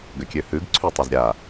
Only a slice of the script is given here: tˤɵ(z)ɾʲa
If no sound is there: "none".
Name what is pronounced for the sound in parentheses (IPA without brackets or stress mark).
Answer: z